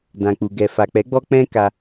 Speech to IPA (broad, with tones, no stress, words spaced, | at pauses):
dã˨k͡pu˨ ɡɛ˨ fa˨k͡pɛ˨˦ɡ͡bɔ˧ k͡pɛ̃˧ ka˧